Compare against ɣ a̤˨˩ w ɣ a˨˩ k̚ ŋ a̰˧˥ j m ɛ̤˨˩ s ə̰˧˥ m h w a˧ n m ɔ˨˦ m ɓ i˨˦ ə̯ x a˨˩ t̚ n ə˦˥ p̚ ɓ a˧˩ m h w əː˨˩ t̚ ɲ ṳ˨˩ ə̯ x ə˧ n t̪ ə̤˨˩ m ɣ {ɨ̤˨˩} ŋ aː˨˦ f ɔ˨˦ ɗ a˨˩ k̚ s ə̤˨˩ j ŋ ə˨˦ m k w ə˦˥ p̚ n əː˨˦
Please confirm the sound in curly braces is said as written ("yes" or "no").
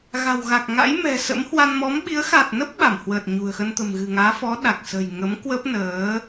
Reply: yes